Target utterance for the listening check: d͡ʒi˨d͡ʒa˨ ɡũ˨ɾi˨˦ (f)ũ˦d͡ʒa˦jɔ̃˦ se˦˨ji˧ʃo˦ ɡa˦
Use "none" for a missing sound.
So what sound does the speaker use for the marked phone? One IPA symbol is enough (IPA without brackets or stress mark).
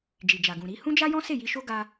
h